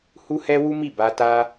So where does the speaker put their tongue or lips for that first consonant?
throat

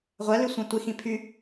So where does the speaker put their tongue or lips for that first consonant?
uvula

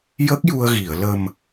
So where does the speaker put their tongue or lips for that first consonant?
palate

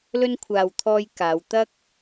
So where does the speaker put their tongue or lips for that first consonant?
tongue tip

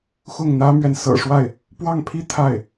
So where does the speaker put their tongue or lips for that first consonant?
velum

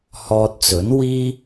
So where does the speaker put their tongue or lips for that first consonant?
throat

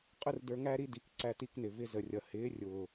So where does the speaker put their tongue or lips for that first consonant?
uvula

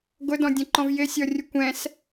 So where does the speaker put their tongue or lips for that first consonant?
velum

